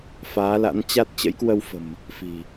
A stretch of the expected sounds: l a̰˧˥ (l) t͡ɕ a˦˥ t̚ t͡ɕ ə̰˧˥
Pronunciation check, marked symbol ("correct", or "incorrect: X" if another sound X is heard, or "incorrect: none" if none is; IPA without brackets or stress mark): incorrect: n